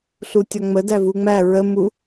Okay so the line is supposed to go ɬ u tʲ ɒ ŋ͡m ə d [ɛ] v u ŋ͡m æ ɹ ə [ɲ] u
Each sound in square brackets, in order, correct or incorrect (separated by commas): incorrect, incorrect